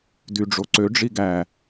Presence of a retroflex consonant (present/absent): present